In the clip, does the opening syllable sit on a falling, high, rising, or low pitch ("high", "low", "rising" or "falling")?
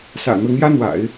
low